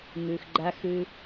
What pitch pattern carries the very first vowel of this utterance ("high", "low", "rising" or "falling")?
low